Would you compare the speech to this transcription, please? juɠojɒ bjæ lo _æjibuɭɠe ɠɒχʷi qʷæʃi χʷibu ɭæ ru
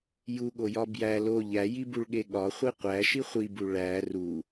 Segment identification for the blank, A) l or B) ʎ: B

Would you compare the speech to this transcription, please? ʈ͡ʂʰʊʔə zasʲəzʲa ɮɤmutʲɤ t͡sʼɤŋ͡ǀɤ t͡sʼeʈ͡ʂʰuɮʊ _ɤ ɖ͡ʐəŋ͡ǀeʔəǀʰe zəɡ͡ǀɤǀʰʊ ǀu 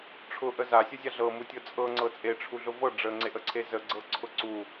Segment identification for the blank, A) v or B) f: A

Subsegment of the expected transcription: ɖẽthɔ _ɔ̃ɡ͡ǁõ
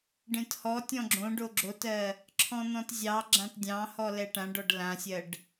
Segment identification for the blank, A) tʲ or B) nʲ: A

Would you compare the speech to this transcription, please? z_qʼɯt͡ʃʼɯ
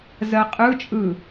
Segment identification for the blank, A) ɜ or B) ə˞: A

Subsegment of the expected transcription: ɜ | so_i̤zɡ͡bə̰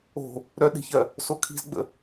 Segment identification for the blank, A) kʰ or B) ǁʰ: A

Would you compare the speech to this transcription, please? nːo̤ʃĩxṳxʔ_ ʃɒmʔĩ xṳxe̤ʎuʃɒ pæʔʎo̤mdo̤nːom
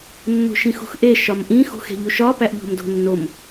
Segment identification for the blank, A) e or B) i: A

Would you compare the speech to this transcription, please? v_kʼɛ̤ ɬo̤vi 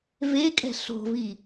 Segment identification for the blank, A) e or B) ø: A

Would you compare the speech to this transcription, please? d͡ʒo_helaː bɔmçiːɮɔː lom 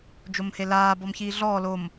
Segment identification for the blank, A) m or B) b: A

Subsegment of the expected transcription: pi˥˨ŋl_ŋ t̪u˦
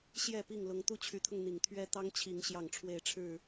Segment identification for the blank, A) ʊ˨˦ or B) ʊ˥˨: A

